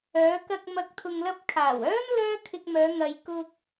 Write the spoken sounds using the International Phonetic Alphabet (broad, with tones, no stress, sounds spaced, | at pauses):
œː˨˧ k ɐ˧ k̚ m ɐ˨ k̚ t̪ʰ ʊ˨ ŋ l ɐ˧ p̚ kʰ aː˨˩ w œː˥ n l œː˥ kʰ ɪ˧ k̚ m œː˨˧ ŋ ɐ˨ j k ʊ˧ k̚